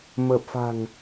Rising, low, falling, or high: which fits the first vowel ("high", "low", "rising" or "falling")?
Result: low